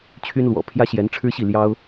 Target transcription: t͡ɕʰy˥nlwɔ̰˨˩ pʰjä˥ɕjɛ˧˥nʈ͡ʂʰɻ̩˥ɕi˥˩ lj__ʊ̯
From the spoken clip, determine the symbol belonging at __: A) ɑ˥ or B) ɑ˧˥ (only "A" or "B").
A